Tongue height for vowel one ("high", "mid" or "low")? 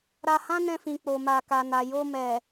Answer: low